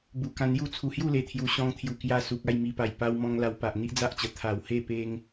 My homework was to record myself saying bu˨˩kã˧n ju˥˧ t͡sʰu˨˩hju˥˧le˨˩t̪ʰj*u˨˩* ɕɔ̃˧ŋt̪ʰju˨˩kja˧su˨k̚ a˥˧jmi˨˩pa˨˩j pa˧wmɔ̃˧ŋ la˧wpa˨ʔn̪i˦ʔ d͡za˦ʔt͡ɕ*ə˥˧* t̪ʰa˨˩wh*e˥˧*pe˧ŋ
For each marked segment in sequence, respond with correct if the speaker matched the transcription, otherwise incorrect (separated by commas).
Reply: correct, incorrect, correct